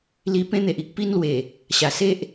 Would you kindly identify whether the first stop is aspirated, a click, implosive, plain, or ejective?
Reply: plain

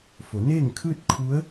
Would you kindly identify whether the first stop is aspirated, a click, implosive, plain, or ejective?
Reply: aspirated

